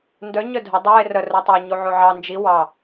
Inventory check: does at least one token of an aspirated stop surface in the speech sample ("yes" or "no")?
no